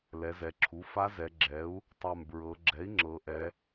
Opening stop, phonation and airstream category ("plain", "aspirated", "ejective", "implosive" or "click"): click